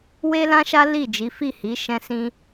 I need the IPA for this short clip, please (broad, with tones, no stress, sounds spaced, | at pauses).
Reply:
w e˦ l ã˦ ʃ a˦ l i˦˨ d͡ʒ i˨˦ f i˦˨ h i˨˦ ʃ ɛ̃˧ s ĩ˧